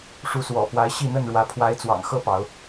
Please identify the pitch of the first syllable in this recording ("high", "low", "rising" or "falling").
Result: rising